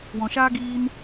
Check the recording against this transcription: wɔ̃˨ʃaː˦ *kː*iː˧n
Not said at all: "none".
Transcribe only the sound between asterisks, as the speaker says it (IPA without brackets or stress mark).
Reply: ɡ